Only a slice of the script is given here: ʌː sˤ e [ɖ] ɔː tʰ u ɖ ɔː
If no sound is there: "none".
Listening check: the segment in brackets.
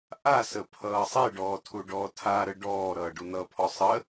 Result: ɖ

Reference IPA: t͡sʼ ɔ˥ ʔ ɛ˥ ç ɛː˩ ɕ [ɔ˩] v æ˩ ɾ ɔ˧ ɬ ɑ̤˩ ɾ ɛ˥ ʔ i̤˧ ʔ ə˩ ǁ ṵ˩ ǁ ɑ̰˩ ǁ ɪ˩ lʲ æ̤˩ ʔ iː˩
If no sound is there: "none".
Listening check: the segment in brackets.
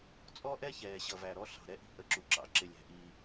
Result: ʌ˩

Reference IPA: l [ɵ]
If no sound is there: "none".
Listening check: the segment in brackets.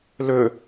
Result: ɵ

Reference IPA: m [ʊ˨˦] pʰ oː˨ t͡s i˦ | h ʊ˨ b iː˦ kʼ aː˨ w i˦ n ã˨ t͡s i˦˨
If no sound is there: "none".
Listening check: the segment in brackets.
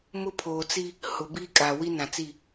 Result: ʊ˦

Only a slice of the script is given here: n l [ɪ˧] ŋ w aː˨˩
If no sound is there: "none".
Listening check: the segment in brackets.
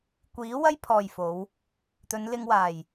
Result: ɪ˧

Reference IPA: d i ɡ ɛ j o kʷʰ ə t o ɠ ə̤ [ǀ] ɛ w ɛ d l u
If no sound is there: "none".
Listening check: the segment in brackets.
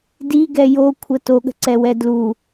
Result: ǀ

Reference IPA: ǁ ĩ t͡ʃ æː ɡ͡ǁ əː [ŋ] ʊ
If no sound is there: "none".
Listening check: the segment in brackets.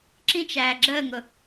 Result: ŋ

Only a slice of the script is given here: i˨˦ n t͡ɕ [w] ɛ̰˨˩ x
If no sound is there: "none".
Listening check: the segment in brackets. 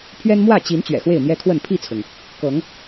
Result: ɥ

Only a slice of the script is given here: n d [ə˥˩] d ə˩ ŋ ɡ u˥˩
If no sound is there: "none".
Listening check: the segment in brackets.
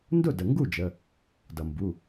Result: ʊ˥˩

